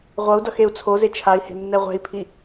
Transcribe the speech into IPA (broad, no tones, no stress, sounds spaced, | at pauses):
ʁʷ ʌ u̯ d ʌ x e u̯ t͡sʰ o z e t͡ʃʰ a i̯ h e̤ nː ɛ ʁʷ ɛ̤ i̯ pʰ i